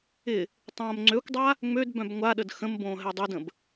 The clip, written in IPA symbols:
ɪ | tˤõːmŋ͡ǀøkʷdˤa | ŋ͡mødbœ̃b ŋʷaɗəd xə̃mbõː ɦɛdˤydə̃b

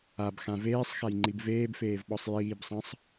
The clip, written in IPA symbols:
abxã veːsˤxajŋ͡ǃib veːbfeːvɓɔsˤ jiːbsˤɐ̃sˤ

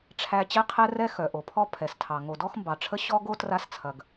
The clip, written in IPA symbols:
ʈ͡ʂʰæ˥ t͡ɕɛ˥qʰɛ˥rɛ˥ xœ˩ʔo˩pʰɔ˥ pʰɛ˩stʰɑ˩ ŋo˩dɔ˥xmbɑ˩ʈ͡ʂʰə˥ ɕɔ˥ɡo˥ tra˥st͡sʰɐ˩ɡ

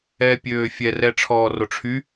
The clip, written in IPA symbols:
ɛːpʲøːfʲɛrɛ ʈ͡ʂʰɔːroʈ͡ʂʰy

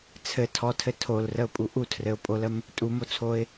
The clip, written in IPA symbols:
t͡sʰɘ tʰɔtʰɘ tʰolrəʊ̯pʼu ʔutʰrɘʊ̯ pʼoləm | tʼumot͡sʰoɪ̯

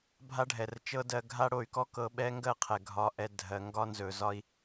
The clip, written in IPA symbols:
bʱa˦ɖʱɛ˨rt͡ʃɤ˦dɜ˧ ɡʱa˦ɽo˧y̯kɔ˦ kɤ˧ɓɛ˦ ŋɡɜ˦qʰɛ˨ ɡʱɒ˧ʔɛ˧ dʱɜ˧ ŋɡɒ˦nzɵ˨zɒ˦i̯

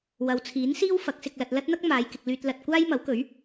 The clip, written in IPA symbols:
wɐ˨wt͡sʰiː˨˥nsiː˥w fɐ˨˥k̚sɪ˧k̚ lɐ˧t̚ lɐ˥t̚n̪ɐ˥k̚ maː˨˧jkɪ˨k̚lyː˧t̚ lɐ˧t̚ kʷaː˥jmɐ˨˥wkɵ˨˥ɥ

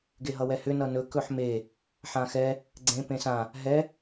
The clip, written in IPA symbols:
ɡeɦʌwɛhʏ nʌnɵ kɵħme | ħãxɛ | ɡ͡ǀẽ pẽsã | ɦɛ

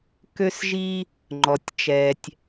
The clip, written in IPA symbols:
kø˧sʒi˧ | ŋ͡ǃɔ˩tʲt͡ʃɛ˩tʲ

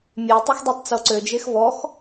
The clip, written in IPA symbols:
mʲetˤexdˤetˤt͡so ǀø d͡ʒexvɔx

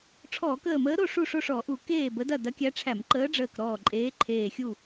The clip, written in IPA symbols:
ʈ͡ʂʰɔː˧˩˧kəː˧˩məː˧˥ɾo˥˨ ʂu˥˨ʂo˥˨ʂɔ˧˩˧ʔu˧˩˧ keː˥˨bə˧˥dɐ˥˨ dɐ˧˥kʲæ˧˥ʈ͡ʂʰæ˧˩˧m ǃəː˧˥ɖ͡ʐəː˧˩k ɾɔː˧˩ǃʼeː˧˥ ǃʰeː˧˩xʲu˥˨

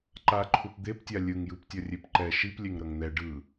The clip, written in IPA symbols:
ǃa ǃʰupd̪eptʲa lʲɯŋjɯptʲʌ rʲepǃɛ ʃiplʲeŋ ɾʌŋn̪ɛ ɖɯ

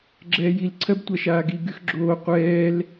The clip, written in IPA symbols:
ɡ͡ǁɛːjil ǀʰɜbtʷaʃaːɡi ɡyxɡ͡ǁoː qʷɛːl

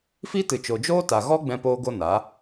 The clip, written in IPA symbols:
fi˦tɨ˨t͡ʃo˨d͡ʒoː˦ ta˨ɣɔ˦ ɡ͡bɛ̃˧poː˧ ɡo˦na˨˦

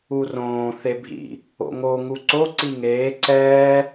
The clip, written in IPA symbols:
urõː θebʱḭ | o̰ŋo ŋuǀo ǀiŋeː ǀɛː

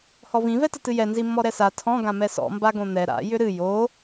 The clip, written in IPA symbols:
hɔvĩ vɛtətɨjɛ nzimːɔɾɛsa tʰɔ̃ ɡãmɛsɔ̰ mbaɡõn̪ɛ ɾa̰ jʏɾɨ jo

